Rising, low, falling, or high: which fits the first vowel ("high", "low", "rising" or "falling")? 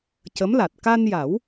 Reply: rising